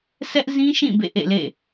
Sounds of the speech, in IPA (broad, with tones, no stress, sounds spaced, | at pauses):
sʰ ɛ˦ ʔ z ĩ˦ ʃ ĩ˦˨ b ḛ˦˨ ʔ ḛ˦˨ l ḛ˦˨